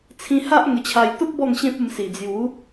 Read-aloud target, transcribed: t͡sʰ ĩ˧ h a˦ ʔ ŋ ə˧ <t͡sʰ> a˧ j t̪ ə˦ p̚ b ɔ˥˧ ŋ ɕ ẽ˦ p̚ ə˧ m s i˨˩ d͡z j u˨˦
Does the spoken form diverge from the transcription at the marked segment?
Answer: yes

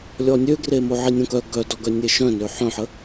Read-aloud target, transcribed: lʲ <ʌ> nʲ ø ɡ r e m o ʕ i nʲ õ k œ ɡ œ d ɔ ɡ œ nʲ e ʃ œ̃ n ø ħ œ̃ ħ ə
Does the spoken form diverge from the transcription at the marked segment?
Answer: yes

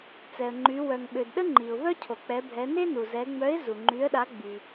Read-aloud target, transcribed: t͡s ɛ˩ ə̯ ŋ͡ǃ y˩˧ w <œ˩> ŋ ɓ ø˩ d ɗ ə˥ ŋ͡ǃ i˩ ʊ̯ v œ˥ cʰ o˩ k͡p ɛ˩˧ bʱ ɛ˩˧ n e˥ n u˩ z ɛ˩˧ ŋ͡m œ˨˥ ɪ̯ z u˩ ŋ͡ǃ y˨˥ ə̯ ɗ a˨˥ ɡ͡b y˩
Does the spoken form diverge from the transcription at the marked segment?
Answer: no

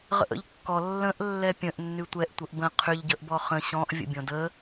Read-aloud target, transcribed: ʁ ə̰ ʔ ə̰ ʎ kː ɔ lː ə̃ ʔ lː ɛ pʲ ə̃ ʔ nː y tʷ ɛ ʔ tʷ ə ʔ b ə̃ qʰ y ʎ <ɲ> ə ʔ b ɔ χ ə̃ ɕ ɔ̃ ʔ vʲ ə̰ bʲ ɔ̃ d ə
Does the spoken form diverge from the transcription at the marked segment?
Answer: yes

